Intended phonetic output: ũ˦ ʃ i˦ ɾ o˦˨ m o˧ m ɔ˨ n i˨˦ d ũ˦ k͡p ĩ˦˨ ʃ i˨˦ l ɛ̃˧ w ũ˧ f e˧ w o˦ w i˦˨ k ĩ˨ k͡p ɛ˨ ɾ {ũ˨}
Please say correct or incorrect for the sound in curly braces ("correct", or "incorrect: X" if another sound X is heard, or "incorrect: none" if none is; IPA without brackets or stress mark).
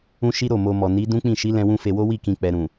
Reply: correct